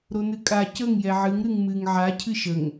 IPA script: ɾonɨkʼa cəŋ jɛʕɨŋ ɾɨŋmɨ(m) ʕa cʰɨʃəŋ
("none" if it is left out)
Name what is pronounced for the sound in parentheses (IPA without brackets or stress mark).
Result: ŋ